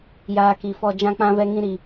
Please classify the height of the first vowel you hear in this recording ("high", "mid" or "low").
low